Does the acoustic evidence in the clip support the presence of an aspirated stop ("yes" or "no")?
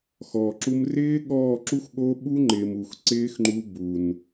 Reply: no